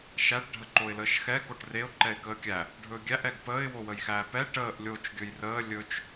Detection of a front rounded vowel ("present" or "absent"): absent